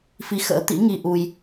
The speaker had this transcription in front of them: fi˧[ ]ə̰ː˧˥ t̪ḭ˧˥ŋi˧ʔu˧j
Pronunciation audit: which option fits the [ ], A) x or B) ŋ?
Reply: A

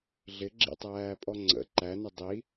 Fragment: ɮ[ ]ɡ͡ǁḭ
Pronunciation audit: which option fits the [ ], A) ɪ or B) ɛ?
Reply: A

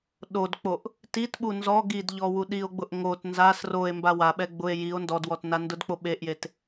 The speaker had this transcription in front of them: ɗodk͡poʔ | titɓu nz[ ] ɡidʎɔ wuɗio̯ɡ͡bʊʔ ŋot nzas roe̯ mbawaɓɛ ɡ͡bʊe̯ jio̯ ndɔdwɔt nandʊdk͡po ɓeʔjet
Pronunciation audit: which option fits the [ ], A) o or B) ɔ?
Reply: B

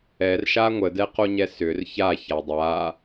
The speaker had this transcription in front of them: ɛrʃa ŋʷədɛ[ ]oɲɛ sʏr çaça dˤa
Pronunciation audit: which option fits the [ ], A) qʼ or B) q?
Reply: B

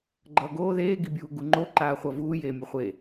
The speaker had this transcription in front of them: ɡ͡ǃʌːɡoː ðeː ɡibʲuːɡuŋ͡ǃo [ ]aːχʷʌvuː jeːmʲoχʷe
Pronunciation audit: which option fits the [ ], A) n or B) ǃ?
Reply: B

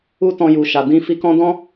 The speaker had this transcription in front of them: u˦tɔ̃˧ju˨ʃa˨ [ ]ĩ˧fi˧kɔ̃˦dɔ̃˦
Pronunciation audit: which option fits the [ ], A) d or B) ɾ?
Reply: A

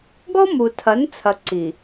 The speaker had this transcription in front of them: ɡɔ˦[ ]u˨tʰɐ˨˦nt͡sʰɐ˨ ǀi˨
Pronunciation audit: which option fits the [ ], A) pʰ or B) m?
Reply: B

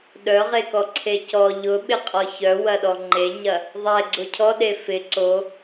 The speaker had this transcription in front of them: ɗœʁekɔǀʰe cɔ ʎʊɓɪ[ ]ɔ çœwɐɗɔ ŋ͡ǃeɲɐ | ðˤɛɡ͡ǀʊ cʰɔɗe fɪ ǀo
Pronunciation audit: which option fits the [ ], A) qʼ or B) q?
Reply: A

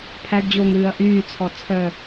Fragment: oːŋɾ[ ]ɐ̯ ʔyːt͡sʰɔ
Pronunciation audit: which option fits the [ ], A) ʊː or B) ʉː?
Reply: B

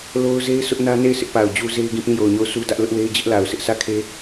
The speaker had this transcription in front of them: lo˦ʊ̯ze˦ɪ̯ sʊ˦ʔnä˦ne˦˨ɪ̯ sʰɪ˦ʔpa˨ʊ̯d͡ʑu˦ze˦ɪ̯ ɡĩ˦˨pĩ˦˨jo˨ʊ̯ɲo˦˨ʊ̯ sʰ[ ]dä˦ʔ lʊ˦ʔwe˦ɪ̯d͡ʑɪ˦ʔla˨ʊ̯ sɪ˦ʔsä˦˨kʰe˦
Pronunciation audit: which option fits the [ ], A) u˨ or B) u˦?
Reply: B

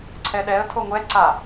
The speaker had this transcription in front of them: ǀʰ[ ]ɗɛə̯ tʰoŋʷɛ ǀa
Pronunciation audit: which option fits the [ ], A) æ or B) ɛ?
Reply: B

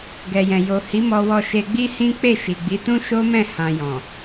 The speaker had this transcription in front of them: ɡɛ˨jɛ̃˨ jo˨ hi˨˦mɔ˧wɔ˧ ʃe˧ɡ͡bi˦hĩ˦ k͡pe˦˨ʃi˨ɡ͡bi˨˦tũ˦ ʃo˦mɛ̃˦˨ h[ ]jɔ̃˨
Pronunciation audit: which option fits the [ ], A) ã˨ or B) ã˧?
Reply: B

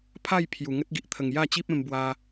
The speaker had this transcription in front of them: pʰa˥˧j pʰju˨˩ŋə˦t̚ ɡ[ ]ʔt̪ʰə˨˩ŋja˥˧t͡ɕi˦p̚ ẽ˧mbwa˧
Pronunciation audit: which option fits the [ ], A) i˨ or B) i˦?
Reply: A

